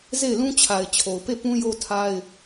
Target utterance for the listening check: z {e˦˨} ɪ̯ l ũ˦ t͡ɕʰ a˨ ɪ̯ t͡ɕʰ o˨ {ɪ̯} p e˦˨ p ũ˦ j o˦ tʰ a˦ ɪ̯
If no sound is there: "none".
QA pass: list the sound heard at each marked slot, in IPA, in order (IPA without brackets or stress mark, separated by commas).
e˦˨, ʊ̯